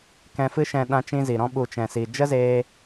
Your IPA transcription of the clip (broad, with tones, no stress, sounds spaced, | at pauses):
k ɛ̃˧ f ɨ˦ ʃ ɛ̃˧ ɗ ã˧ t͡ʃ ĩ˧ z i˨ ɾ ɔ̃˧ ɓ u˨ t͡ʃ ɛ̃˨ s i˨ d͡ʒ ə˦ z eː˧